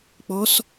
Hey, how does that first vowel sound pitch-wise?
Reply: rising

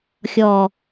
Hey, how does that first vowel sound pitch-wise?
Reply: low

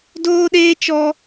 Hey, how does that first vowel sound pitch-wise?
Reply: high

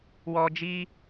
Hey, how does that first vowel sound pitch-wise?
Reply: high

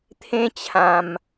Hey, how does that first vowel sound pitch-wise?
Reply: high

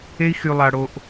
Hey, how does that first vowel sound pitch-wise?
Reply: high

